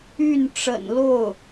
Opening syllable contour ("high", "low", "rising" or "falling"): falling